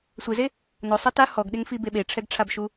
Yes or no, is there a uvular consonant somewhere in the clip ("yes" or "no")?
no